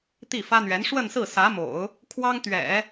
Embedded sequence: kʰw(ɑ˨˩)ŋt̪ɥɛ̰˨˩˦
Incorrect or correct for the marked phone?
incorrect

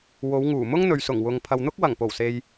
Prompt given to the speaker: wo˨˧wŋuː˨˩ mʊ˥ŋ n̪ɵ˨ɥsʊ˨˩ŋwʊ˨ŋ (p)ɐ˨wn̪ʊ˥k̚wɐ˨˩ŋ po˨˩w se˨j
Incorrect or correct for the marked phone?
incorrect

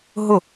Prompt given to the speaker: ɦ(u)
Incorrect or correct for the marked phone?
incorrect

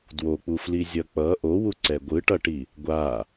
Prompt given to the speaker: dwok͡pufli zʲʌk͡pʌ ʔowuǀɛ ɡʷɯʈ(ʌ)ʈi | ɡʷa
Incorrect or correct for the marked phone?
correct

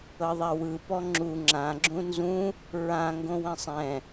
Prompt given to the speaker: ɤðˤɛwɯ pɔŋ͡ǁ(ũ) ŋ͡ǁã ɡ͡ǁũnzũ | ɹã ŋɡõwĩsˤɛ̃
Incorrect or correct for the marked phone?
incorrect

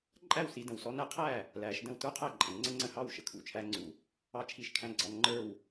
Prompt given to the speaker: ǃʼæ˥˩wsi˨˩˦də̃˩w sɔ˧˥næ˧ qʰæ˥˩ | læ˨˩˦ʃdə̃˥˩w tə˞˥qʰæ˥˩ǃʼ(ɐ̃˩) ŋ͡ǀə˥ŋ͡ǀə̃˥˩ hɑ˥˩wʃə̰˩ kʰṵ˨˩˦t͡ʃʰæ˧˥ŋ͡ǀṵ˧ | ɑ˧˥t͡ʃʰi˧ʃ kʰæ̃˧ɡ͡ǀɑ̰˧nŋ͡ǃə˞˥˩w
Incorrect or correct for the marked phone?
incorrect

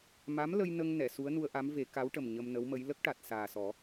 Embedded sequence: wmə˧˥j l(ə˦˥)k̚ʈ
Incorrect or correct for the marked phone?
correct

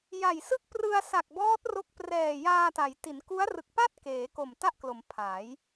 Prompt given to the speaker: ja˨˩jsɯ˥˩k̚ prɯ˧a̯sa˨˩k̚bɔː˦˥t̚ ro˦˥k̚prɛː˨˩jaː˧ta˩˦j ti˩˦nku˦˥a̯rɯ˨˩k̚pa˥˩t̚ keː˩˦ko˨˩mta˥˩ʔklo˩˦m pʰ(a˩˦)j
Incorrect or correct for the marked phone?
correct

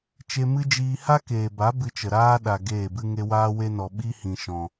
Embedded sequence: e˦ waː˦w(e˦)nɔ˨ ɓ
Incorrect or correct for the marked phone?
correct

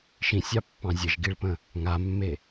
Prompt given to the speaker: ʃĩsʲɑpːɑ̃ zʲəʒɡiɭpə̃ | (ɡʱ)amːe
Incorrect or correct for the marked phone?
incorrect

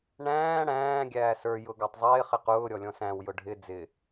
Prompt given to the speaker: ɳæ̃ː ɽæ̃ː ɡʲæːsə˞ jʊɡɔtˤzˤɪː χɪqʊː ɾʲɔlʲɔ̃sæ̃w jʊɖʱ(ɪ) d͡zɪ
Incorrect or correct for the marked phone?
correct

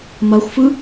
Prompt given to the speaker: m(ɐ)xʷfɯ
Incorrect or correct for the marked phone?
correct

